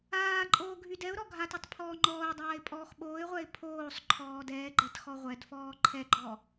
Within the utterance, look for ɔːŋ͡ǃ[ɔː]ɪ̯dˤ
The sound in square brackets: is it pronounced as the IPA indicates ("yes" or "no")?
yes